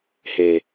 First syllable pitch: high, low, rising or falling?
low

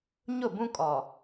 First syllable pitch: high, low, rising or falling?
falling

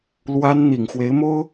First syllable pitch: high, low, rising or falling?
high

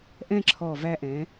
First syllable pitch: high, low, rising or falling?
falling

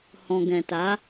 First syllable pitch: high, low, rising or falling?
low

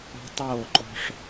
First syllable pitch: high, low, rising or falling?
high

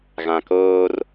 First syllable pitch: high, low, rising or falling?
low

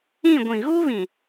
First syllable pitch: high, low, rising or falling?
falling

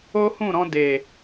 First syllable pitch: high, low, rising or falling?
high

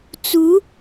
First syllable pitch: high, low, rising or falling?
rising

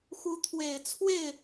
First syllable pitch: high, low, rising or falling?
rising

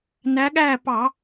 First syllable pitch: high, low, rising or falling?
rising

